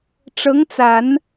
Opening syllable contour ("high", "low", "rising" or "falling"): rising